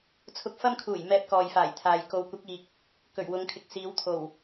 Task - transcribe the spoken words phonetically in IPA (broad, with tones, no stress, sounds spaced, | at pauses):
t͡sʰ ʊ˧ k̚ f ɐ˥ m kʰ uː˨˩ j m ɛː˧ p̚ k ɔː˨ j f aː˨˩ j t̪ʰ aː˨ j k o˨ w kʷ ɪ˨˥ k̚ iː˨ k̚ | k ɵ˨˩ ɥ w ʊ˨˧ ŋ kʰ ɪ˨ k̚ s iː˨˧ w t̪ʰ o˨˩ w